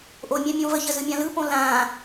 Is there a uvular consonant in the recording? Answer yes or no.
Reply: no